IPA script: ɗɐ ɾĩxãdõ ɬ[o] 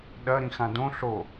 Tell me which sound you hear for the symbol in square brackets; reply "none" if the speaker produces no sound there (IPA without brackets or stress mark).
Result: o